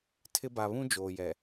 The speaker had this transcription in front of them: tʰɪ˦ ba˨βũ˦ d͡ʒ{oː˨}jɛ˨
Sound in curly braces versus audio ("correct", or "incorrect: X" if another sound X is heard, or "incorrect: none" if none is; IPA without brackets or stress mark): correct